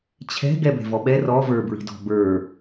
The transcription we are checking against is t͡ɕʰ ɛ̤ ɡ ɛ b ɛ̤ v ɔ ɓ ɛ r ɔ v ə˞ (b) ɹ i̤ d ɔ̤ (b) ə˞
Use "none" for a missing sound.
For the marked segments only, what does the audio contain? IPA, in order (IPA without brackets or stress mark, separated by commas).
b, b